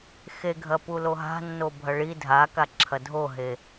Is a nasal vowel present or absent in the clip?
absent